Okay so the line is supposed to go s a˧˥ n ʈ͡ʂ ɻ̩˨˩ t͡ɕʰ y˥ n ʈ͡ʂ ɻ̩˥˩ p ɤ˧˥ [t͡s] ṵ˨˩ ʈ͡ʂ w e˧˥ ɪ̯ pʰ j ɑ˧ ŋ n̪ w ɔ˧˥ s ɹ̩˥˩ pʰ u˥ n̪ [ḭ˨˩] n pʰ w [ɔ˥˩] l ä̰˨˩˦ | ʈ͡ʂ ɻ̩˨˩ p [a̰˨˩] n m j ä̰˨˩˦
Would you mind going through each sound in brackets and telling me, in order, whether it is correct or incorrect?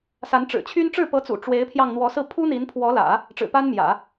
correct, incorrect: i˧˥, incorrect: ɔ˧˥, incorrect: a˥

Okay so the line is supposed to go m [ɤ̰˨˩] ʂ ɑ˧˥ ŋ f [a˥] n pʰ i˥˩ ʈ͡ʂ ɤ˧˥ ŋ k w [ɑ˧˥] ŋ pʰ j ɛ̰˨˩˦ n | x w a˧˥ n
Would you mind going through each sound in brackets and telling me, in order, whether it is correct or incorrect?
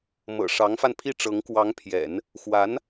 correct, incorrect: a˧, correct

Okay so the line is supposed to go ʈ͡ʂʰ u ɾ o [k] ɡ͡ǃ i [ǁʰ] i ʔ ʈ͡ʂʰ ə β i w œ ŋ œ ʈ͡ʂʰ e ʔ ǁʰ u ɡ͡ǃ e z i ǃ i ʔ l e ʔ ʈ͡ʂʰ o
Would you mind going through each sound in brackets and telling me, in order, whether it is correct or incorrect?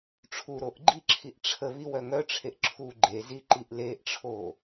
incorrect: ʔ, correct

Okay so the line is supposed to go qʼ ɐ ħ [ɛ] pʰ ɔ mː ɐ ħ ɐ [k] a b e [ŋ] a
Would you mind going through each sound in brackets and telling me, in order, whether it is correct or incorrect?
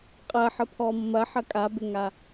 incorrect: ə, incorrect: kʼ, correct

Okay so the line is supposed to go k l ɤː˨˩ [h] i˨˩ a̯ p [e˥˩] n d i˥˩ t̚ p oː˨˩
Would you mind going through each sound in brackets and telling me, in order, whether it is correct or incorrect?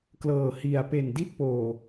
correct, incorrect: e˨˩

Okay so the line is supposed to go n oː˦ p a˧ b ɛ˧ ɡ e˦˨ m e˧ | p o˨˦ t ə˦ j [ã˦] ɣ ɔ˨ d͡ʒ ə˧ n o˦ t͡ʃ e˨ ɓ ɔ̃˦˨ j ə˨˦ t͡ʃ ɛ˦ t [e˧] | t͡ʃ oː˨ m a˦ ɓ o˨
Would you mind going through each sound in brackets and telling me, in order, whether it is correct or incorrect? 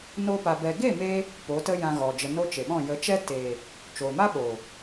incorrect: ã˧, incorrect: e˨

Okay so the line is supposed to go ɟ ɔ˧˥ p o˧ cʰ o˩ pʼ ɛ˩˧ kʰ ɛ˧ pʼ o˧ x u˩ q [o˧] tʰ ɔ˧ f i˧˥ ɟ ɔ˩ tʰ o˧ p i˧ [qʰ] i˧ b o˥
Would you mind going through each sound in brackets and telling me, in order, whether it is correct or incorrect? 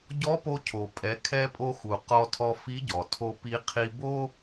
incorrect: ɔ˧, correct

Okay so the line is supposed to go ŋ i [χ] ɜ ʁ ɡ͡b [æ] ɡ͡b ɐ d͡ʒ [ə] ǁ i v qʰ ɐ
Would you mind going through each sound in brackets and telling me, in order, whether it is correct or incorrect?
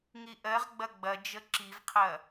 incorrect: ʔ, incorrect: ɐ, correct

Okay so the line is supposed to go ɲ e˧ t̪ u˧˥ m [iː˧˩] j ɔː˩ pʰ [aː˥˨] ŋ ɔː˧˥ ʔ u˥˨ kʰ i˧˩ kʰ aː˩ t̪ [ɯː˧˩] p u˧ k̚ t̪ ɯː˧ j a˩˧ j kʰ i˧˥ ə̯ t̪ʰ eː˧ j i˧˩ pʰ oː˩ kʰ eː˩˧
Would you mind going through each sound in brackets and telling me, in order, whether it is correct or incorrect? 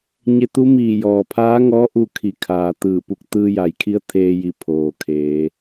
correct, incorrect: aː˧˥, correct

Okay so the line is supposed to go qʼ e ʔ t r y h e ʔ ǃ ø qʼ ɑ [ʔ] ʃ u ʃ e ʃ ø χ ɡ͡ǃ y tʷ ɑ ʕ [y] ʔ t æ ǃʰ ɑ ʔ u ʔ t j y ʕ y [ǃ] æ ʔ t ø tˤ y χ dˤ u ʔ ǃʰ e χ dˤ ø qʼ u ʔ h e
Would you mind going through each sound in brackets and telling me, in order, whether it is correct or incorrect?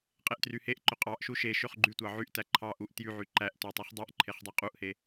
correct, correct, correct

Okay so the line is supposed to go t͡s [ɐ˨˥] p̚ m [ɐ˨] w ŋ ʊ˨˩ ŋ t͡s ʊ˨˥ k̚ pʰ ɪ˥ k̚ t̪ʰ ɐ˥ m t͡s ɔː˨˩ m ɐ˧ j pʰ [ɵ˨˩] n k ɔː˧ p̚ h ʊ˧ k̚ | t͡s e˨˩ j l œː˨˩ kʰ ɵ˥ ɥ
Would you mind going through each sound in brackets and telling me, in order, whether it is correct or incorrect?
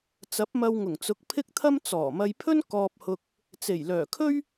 correct, incorrect: ɐ˧, incorrect: ɵ˥

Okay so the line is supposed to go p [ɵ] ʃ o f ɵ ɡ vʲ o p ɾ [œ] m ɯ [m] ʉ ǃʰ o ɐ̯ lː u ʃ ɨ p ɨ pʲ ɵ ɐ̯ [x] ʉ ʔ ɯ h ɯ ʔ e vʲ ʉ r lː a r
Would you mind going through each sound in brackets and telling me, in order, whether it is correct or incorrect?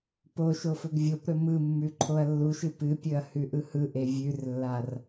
incorrect: o, incorrect: ɵ, incorrect: mː, incorrect: h

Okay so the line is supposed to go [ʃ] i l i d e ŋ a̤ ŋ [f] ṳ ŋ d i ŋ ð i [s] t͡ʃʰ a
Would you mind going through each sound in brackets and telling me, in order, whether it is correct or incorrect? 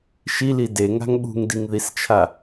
correct, incorrect: ɓ, correct

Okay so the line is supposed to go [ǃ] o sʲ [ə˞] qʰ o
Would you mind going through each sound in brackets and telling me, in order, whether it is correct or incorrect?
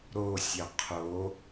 incorrect: ɾ, incorrect: ɐ

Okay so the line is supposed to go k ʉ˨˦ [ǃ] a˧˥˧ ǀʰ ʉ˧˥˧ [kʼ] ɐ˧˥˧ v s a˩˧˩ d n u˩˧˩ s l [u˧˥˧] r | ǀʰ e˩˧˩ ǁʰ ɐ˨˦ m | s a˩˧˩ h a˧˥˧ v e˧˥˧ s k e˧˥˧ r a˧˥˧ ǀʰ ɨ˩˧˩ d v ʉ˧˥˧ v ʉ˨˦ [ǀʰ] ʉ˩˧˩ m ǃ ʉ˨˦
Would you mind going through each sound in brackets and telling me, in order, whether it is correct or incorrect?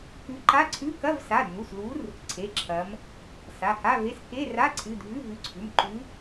correct, incorrect: k, incorrect: u˨˦, correct

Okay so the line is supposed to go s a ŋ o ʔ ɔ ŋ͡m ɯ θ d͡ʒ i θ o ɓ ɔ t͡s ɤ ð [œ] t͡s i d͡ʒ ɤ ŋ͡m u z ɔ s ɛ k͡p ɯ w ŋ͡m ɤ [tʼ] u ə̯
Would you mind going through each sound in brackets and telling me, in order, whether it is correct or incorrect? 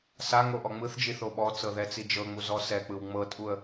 incorrect: ɛ, correct

